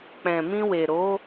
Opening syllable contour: low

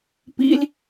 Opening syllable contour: high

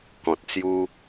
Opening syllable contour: low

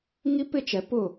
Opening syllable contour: high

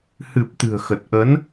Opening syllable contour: low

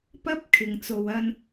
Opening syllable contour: high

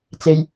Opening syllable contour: low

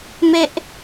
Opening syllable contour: high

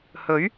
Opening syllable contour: rising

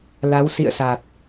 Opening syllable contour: rising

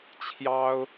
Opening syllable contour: high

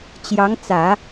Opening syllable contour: rising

